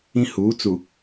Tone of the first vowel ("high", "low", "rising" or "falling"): high